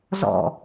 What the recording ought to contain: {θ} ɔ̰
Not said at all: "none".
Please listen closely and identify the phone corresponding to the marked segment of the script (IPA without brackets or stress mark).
z